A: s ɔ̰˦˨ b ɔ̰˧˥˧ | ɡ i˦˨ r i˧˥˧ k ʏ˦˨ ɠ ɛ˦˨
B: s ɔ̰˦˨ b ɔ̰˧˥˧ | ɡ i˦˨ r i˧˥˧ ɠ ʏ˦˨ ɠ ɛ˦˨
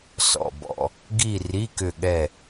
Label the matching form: A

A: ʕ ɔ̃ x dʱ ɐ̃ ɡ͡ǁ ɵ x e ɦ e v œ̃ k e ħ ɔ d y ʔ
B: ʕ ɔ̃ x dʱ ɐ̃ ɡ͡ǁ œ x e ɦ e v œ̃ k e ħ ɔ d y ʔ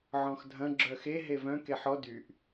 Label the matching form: B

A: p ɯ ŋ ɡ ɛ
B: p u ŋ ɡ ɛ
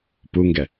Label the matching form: B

